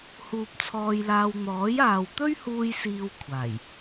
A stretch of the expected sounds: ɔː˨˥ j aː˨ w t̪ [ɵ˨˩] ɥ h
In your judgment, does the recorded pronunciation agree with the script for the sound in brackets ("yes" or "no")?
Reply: no